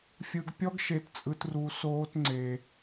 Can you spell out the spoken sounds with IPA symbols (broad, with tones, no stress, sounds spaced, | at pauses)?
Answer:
fʲ ɯ˧ ɡ pʲ ɔ˦ ɡ ʃ e˧ t t͡sʼ ɯ˧ t r u˧ s oː˦ t ŋ͡ǀ e˧